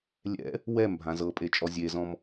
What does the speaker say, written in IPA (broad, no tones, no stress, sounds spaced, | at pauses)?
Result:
lʲ ɛ̰ | w ɛ m bʱ ã z ɤ pʼ e t͡ʃʼ ɔ zʲ e z ɔ̃ m